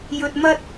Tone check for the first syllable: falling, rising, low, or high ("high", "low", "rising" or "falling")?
low